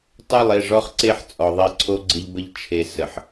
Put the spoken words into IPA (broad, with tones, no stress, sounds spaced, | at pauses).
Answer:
tˤ o˦˨ lˠ e˦˨ ʐ ɔ˦ χ ǀ e˦ ħ t͡sʼ ɔ˨ ðˤ e˦ ǀʰ o˦ ɡ͡ǀ ɪ˦ ʎ b ə˦ ʎ t͡ʃʰ e˨ s ə˨ ħ